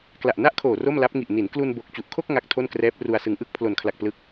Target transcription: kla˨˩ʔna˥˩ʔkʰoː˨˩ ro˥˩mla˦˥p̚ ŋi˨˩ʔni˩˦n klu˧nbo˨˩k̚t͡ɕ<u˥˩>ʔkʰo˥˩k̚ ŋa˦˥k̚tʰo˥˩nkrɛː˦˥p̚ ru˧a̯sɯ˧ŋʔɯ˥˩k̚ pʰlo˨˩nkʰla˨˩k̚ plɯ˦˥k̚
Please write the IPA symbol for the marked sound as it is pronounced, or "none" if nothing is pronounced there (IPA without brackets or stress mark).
u˨˩